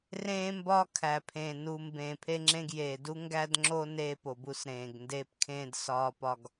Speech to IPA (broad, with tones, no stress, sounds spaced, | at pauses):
r ẽː˦ m b ɒː˦ kʰ æ˨ pʰ ẽː˨ n u˨ m b ẽː˨ pʰ e˦ ŋ͡ǁ ẽ˦ ɡ j eː˨ d u˦ ŋ ɡ æ˦ d ŋ͡ǁ o˦ n eː˦ p o˨ b u˦ s ɾ ẽː˨ ɡ n d eː˦ p kʰ ẽː˦ d s ɒː˦ p ɒ˦ ɡ